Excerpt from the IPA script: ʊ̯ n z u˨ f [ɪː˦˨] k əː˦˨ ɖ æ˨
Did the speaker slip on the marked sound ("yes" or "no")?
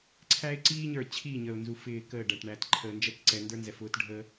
no